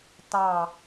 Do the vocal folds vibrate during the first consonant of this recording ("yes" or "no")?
no